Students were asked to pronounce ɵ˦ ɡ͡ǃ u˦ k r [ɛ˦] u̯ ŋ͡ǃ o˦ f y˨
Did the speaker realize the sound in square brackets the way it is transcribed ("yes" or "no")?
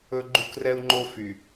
yes